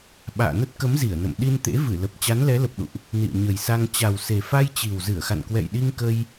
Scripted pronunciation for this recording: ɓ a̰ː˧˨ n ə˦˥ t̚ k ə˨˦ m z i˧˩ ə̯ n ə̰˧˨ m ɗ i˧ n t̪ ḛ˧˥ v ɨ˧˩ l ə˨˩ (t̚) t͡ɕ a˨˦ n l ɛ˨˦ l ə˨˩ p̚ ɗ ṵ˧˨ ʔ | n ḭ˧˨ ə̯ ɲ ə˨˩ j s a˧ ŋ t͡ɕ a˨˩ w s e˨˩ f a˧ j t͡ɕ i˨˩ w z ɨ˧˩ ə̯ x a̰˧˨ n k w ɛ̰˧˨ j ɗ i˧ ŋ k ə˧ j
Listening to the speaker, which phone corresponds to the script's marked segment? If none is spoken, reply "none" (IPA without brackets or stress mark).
p̚